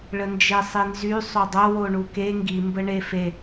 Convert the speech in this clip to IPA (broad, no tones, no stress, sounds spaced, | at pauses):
ɭ ə n d͡ʒ e sˤ i n z y sˤ o dˤ o w o ɳ u k e ŋ ɡ i m b ə ɳ e f e